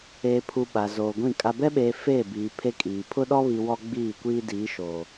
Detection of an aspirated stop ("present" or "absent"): present